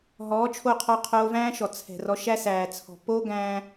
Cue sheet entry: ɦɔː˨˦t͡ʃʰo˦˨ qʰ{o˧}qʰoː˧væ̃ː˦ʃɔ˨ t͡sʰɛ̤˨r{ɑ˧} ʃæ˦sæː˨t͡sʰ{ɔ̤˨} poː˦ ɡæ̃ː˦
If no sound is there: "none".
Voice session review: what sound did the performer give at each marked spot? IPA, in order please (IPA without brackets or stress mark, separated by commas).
ɔ˧, ɔ˧, ɔ̤˨